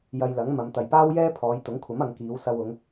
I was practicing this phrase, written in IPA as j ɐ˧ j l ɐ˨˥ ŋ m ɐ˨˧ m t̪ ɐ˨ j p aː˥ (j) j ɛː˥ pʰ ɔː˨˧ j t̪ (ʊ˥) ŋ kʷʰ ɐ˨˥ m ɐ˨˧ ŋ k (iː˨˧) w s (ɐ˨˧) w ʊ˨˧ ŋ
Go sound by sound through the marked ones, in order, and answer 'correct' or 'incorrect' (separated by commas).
incorrect, incorrect, correct, incorrect